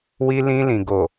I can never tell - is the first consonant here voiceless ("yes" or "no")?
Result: no